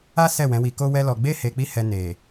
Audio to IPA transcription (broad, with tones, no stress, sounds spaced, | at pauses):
a˦ s ɛ˦˨ w ɛ̃˨˦ w i˧ k o˦ w ɛ˦ l ɔ˧ ɡ͡b e˦ h e˧ k͡p i˦ h ɛ˧ n e˨